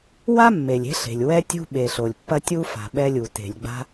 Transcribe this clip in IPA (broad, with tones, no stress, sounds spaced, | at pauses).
w a˥ mː e˩ lʲ e̤˥ ɬ e̤˩ lʲ w ɛ˥ tʲ ṳ˥ ɓ e˩ ɬ o˩ lʲ pː ɐ˥ tʲ u˥ f a̤˩ ɓ ɛ˥ lʲ u˩ t e̤˩ lʲ ɡ͡b a̤˥